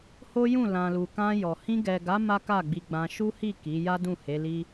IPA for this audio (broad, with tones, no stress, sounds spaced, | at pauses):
h o˦ j ũ˦˨ l ã˨ l u˨ k ã˧ j ɔ˨ h ĩ˧ ɡ ɛ˨ ɡ a˨˦ m a˦ k a˦˨ ɡ͡b i˧ ɡ͡b ã˧ ʃ u˦ h i˦˨ k i˨˦ j a˦ d ũ˦˨ h e˨˦ l i˦